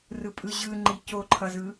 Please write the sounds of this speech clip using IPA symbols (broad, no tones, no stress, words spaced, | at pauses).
rɯpʼɯʑɯŋ͡ǃi coǃʰʌzɯ